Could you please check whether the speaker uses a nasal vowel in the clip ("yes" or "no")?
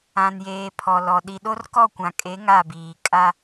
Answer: yes